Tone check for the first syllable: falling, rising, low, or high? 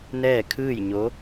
falling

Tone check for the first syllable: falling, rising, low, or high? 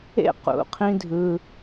falling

